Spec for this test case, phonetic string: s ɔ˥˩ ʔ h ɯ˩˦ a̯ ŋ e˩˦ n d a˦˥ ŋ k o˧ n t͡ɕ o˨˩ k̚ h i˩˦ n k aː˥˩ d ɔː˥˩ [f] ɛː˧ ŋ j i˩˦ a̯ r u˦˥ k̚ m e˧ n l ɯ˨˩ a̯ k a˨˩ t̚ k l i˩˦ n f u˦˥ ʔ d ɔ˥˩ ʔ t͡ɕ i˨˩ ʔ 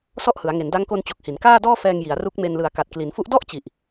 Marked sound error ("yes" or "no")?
no